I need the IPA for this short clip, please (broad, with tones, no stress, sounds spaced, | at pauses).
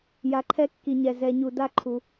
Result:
j a˨ ǃʰ ɛ˦ kː i˨ ɲ ɛ˨ z ɛ˨ ɲ u˨ d a˦ ǃʰ u˨